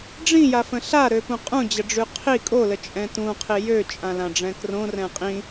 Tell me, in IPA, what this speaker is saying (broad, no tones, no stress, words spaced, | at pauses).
ɖ͡ʐĩjafə̃ ɬaɾøpũ qʼũd͡ʑəɖ͡ʐy qʰi kʼolət͡ʃʼɛ̃ tũqʰi jøt͡ʃʼãlãɖ͡ʐɛ̃ krõrɛ̃ qʼĩ